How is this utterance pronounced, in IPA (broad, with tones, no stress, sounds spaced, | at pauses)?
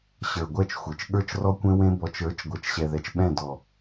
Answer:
ɕ ə˞˨ ɡʷ ɛ˦˨ t͡ʃ xʷ e˨ t͡ʃ ɠ ə˞˦ t͡ʃ r ɔ˦ kʷ ẽ˦ w ẽ˦ b ɔ˨ t͡ʃ ə˞˨˦ t͡ʃ ɡʷ ɜ˨ t͡ʃ ɕ ɛ˨ ð ɛ˨ t͡ʃ ɓ ɛ̃˦˨ d ɔ˨